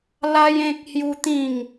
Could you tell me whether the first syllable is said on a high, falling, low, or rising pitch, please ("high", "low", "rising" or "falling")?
high